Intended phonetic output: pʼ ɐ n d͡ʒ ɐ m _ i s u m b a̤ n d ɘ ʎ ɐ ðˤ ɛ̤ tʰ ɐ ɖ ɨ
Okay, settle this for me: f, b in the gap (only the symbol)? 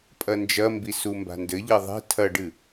b